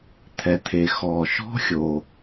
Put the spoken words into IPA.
t̪ʰɛ˩t̪ʰe˩ xɔ˩ ʃɔ̤˥xʲo˩

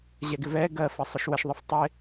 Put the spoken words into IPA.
ʑɛɡɪvɛ ɡɜfə sˤʊʃwəʃ ðˤɪftˤɪ

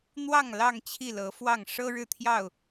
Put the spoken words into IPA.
n̪wɑ˥˨ŋ lɑ˥˨ŋ t͡ɕʰi˥˨lɤ˨˦fwɑ˥˨ŋ ʂɤ˦ɻɻ̩˥˨t̪ʰjɑ˥˨ʊ̯

